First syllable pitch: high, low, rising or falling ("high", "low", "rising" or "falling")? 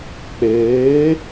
rising